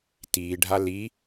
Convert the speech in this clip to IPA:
t iː ɖʱ a l i

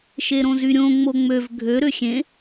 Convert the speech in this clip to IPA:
ʃ e ɾ õ z y ɾʲ õ ŋ͡m o ŋ͡m ø v ɡʱ ø ɾ ø xʲ ẽ

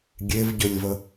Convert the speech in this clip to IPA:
ɡʲ e v ɟ ɵ lʲ v ə

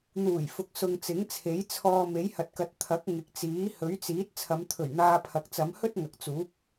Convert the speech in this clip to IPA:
n̪ uː˨˩ j f ʊ˨ k̚ s ʊ˨ ŋ t͡s ɪ˨˥ ŋ t͡sʰ e˨˥ j t͡sʰ ɔː˧ m e˨˥ j h ɐ˨ t̚ k ɐ˨˥ t̚ t̪ʰ ɐ˨˥ k̚ ŋ ɪ˨ k̚ t͡s iː˨˥ h ɵ˨˥ ɥ t͡s iː˨˥ t̚ t͡sʰ ɐ˨˧ m t̪ʰ ɵ˨˩ ɥ n̪ aː˧ pʰ ɐ˨ k̚ t͡s ɐ˨˧ m h ɵ˥ t̚ ŋ ɐ˨ k̚ t͡s uː˨˥ p̚

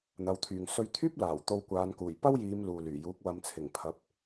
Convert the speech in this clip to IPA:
n̪ ɐ˨˧ w t̪ʰ yː˨ ŋ s ɵ˧ ɥ t̪ʰ yː˥ p̚ l aː˨˩ w t̪ o˧ w kʷ aː˨˧ n k uː˨˩ j p ɐ˥ w j iː˨˧ m l uː˨ l yː˨˩ j uː˨˥ k̚ w ɐ˨ m t͡sʰ ɪ˨˩ ŋ pʰ ɐ˨˥ p̚

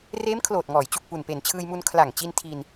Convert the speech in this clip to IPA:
r eː˦˥ m kʰ l oː˨˩ t̚ ŋ ɔː˩˦ j t͡ɕ u˨˩ k̚ p u˨˩ n p e˨˩ n t͡ɕʰ ɯː˧ j m u˧ n kʰ l a˨˩ ŋ t͡ɕ i˧ n tʰ i˧ n

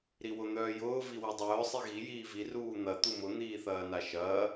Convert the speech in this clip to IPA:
ɾ i w ʊ n̪ œː j ʊː v i w e dˤ œː sˤ i ɣ i j iː v i r uː n̪ ɐ t̪ u m ʊ n̪ iː θ ɐː n a ʃ ɐː

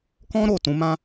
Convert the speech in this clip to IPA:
k ɔ̃˦ ɾ o˦˨ t ũ˧ m ã˦

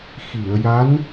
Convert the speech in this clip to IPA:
x i˨˩˨ ə̯ j a˧˥ n

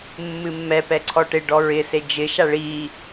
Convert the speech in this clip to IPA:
mː ɨ mː ɛ p ɛ ǀʰ ɔ ʈ ɪ ɖ ɔ ɹ ɪ s e d͡ʒ ɪ ʃ a ɭ i

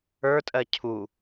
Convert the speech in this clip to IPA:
ə˞ tʼ ɜ cʰ u

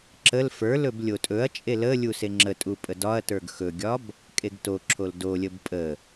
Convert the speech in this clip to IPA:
ǁ ə l f ə˞ l ɵ b lʲ o tʼ ɵ ɐ̯ t͡ʃʼ e l ə lʲ u s e ŋ͡ǁ ə tʼ u pʼ ə d ɒ ɐ̯ t ə˞ ɡ x ɵ ɡʲ ɒ b | kʼ e ɡ t o ǁʰ o l d o lʲ ə b pʼ ə

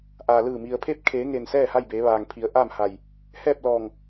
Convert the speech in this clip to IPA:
ʔ aː˩ l ɯː˧˩ m i˩ ə̯ pʰ e˥˨ p̚ kʰ eː˩˧ ŋ e˩ n s ɛː˥˨ h a˥˨ j b eː˩˧ ʋ aː˩ ŋ pʰ i˩˧ ə̯ ʔ a˥˨ m h a˧˩ j | h ɛː˥˨ p̚ l ɔː˧˩ ŋ

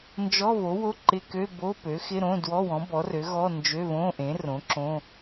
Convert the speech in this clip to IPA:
n d͡ʒ ɔ˧˥˧ β o˩˥ w o˧˥˧ ǃ ɪ˧˥˧ k ø˧˥˧ b o˧˥˧ p ø˩˥ x ɪ˧˥˧ ɾ õ˧˥˧ d w ɔ˧˥˧ w ɔ̃˩˥ b ɔ˩˥ r ø˩˥ ɣ ɔ˧˥˧ n d͡ʒ ø˧˥˧ β õ˧˥˧ ʔ ẽ˩˥ r õ˩˥ ǁ õ˧˥˧

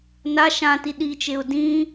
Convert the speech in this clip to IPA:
n a ʃ ã t i ɗ i t͡ʃ e ʊ̯ d ĩ

